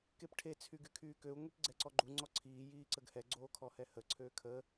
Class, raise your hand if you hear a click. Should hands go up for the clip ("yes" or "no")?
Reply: yes